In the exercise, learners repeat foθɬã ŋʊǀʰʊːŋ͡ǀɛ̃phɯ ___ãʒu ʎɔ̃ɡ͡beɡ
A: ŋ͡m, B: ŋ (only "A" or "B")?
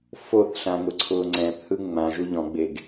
A